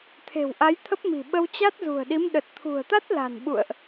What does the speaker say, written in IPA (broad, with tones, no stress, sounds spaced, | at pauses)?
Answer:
t̪ʰ e̤˨˩ w ʔ a˨˦ j t̪ʰ ə˦˥ p̚ m i̤˨˩ ɓ ə˧ w t͡ɕ a˦˥ t̚ z ṳ˨˩ ə̯ ɗ i˨˦ m ɗ ə˨˩ t̚ t̪ʰ ṳ˨˩ ə̯ t̪ a˦˥ t̚ l a̤˨˩ n ɓ ṵ˧˨ ə̯ ʔ